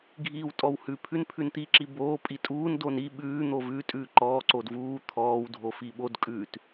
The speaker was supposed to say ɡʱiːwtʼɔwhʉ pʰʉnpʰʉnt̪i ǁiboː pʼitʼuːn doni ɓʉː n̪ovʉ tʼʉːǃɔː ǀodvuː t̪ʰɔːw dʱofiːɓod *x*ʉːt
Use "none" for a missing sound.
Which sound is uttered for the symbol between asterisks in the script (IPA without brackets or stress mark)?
kʼ